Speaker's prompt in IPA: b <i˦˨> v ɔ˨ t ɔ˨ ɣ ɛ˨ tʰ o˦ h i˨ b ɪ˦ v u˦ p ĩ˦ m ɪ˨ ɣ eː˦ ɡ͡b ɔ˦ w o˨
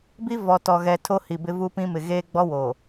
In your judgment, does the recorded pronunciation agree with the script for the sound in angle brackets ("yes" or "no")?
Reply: no